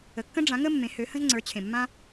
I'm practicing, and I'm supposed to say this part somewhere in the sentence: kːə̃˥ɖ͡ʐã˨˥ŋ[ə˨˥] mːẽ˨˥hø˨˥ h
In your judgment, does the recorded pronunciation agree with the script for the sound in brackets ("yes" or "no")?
no